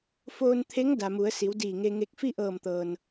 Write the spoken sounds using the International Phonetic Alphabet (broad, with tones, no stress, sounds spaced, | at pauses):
f oː˧ n t̪ʰ e˧˥ ŋ d a˩ m u˩˧ ə̯ s i˩˧ w d iː˧˩ ŋ e˧ ŋ e˧ k̚ f i˥˨ ʔ ɤː˧˩ m t̪ ɤː˩ n